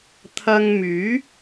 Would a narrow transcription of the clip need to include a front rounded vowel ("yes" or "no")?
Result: yes